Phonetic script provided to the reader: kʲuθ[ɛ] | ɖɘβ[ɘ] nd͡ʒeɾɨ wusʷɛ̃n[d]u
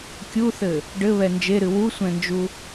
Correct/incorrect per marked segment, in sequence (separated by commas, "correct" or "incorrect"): incorrect, incorrect, incorrect